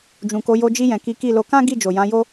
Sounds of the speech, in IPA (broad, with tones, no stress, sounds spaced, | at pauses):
d͡ʒ ũ˨ k o˨˦ j o˧ d͡ʒ i˧ j ɛ̃˨ k i˨˦ k i˦˨ l o˨˦ k ã˦ ɡ i˦˨ d͡ʒ o˨ j ã˨˦ j o˦